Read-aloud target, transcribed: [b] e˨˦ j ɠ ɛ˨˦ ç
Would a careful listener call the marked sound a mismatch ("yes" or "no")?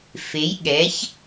yes